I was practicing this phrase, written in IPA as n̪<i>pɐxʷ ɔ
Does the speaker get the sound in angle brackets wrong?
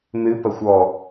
yes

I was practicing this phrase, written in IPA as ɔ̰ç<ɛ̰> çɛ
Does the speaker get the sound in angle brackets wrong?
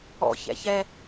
no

